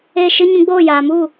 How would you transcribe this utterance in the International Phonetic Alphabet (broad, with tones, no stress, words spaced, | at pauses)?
e˦˨ʃɨ˦ ɲũ˧ɡ͡boː˦˨jaː˨mu˦˨